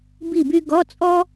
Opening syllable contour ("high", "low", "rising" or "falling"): falling